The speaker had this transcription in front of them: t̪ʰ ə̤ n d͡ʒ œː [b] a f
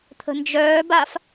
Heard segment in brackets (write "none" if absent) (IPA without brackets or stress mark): b